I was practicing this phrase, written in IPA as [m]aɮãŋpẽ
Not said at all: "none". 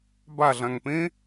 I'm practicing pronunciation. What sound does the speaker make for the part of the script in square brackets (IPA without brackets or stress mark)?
b